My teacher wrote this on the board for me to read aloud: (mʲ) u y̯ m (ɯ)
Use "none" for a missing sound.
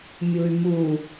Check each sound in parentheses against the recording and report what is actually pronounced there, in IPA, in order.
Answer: mʲ, u

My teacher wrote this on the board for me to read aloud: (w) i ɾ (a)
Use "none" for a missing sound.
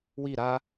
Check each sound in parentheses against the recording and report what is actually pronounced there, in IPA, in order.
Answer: w, a

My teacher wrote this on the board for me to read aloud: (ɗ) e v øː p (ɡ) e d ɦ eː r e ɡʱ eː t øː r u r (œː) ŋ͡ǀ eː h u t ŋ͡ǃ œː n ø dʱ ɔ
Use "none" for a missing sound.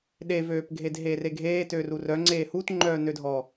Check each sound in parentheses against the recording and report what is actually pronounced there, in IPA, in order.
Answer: ɗ, ɡʱ, œ

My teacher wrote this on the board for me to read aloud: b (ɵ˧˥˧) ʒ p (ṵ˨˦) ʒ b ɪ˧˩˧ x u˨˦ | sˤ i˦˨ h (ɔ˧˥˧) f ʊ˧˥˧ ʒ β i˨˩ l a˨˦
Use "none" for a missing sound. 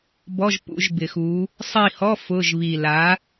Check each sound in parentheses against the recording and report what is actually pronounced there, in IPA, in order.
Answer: ɔ˧˥˧, ṵ˨˦, ɔ˧˥˧

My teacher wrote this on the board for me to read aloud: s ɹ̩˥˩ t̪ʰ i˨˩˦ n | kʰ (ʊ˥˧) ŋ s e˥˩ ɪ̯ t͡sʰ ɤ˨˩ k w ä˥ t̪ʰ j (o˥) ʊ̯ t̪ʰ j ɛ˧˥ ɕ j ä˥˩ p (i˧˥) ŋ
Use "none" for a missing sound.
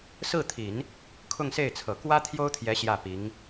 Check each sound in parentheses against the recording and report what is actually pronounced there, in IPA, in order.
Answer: ʊ˥˧, o˥, i˧˥

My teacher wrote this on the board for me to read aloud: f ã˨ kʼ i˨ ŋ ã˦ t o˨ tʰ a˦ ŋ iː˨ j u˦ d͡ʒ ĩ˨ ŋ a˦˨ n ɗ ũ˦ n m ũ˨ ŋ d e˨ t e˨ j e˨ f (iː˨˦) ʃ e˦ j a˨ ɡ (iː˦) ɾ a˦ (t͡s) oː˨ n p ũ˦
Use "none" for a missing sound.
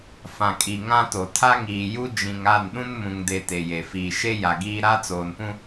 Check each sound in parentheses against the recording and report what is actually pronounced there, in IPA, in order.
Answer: iː˨, iː˦, t͡s

